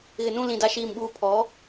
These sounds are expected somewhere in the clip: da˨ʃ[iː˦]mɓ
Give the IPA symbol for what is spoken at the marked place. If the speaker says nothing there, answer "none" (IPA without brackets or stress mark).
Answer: iː˨